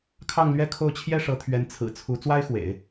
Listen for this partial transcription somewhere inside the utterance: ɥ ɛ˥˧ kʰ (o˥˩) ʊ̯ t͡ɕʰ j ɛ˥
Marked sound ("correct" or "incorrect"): correct